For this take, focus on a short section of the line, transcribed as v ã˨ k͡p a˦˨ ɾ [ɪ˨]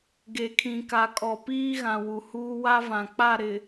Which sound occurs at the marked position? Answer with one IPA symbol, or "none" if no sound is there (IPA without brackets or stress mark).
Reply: ɪ˨